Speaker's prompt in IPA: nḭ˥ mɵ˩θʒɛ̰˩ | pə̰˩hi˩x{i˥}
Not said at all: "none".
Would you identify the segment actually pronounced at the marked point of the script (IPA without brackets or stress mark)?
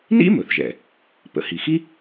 i˥